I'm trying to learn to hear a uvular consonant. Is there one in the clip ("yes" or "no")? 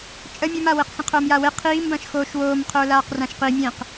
yes